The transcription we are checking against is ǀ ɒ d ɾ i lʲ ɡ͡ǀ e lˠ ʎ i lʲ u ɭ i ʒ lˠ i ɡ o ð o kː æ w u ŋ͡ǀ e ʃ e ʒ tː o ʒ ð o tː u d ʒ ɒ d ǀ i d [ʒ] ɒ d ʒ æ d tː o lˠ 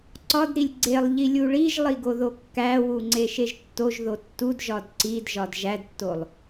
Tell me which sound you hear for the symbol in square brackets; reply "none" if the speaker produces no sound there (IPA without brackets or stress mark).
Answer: ʒ